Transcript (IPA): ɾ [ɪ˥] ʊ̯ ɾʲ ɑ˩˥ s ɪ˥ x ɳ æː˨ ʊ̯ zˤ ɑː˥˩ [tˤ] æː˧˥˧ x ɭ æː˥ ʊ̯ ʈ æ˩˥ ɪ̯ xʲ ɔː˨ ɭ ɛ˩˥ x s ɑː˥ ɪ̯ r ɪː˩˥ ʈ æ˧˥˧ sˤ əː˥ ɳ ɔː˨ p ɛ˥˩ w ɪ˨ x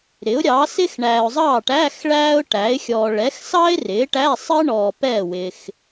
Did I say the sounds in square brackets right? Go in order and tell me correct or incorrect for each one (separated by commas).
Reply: incorrect, incorrect